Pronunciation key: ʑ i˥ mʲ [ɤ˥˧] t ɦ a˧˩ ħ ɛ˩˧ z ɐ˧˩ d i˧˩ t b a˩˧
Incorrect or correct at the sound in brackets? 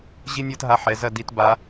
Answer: correct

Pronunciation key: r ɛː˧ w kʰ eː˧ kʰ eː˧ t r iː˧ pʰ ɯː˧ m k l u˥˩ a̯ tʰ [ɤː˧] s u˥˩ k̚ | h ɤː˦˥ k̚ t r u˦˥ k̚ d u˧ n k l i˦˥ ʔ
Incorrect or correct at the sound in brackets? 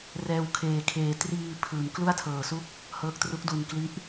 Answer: correct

